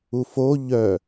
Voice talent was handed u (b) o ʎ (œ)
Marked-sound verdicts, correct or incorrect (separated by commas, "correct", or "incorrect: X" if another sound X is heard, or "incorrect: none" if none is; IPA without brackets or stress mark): incorrect: f, correct